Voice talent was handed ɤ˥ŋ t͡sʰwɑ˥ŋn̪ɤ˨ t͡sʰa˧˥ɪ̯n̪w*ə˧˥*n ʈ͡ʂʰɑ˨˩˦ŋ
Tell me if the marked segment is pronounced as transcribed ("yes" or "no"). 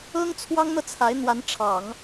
no